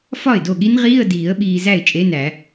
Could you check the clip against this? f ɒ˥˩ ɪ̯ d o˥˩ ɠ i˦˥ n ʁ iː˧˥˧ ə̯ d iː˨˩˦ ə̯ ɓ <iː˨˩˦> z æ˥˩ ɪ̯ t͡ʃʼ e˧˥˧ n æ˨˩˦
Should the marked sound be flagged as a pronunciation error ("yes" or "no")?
yes